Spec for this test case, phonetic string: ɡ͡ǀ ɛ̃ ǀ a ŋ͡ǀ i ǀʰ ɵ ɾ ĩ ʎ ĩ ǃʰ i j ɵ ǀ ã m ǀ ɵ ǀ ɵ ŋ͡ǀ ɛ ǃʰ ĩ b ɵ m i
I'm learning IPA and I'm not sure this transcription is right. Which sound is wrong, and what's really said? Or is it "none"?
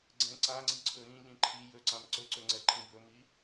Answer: none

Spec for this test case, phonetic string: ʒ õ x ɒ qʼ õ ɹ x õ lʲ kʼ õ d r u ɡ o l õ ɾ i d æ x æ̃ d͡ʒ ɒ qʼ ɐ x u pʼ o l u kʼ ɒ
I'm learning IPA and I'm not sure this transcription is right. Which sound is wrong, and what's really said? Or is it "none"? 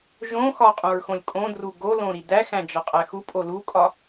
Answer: ɐ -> æ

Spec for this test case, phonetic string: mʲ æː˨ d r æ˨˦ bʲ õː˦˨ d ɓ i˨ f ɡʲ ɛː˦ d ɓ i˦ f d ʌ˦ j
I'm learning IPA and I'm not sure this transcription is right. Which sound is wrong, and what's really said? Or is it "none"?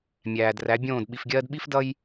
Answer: ɛː˦ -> ɜː˦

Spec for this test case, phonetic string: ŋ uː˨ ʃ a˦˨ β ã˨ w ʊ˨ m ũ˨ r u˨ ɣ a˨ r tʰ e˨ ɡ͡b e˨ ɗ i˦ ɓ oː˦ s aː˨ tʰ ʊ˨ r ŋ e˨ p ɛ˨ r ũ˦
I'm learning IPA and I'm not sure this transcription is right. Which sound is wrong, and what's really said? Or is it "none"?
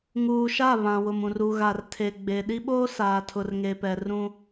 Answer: none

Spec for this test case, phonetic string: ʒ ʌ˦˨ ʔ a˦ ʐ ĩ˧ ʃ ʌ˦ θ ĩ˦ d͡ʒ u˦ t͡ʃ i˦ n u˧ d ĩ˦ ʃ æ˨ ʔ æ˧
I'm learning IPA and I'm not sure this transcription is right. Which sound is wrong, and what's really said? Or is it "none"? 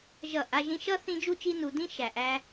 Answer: ʐ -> ʒ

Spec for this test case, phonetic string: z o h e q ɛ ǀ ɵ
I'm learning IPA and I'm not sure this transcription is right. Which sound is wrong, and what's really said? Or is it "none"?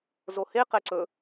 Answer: none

